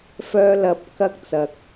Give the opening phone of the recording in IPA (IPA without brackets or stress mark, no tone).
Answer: f